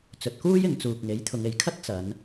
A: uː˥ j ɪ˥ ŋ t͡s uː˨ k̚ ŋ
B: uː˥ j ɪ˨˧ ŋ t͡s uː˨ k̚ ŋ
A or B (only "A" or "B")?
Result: B